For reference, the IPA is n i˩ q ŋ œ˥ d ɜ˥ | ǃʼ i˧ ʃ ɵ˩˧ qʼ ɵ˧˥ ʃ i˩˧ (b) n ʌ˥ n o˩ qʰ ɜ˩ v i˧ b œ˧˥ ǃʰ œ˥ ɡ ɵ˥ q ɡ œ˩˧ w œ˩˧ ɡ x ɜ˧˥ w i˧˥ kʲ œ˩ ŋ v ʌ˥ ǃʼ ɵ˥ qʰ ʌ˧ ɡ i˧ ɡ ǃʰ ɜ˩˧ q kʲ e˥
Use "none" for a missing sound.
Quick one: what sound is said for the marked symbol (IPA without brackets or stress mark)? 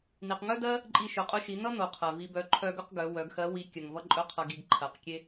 none